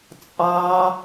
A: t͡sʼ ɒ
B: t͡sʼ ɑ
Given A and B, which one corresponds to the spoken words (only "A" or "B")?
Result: B